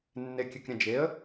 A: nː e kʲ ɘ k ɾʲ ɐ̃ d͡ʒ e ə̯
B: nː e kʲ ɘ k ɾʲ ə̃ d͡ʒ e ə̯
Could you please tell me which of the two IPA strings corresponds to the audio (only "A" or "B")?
A